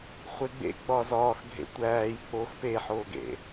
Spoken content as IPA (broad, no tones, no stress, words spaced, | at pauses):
χʷeɡ͡bḛ ɡ͡bɒzɒːxɡʱḛ tʷæːj k͡pox peħoːɡḛ